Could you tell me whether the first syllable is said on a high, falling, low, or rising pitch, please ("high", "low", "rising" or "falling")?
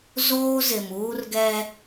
high